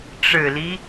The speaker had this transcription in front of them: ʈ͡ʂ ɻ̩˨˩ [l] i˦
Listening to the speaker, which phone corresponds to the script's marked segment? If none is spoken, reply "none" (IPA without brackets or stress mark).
l